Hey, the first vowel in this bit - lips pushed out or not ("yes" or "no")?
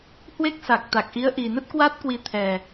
no